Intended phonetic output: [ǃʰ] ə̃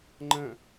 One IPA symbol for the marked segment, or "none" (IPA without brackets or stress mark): ŋ͡ǃ